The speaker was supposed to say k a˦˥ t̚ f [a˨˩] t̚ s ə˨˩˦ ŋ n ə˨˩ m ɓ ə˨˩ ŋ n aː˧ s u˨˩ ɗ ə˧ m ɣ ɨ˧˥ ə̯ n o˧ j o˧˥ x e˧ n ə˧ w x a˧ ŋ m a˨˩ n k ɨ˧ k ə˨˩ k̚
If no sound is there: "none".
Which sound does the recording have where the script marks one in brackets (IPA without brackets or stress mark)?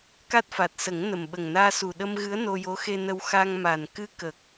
a˨˩